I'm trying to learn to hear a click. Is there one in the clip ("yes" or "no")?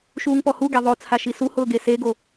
no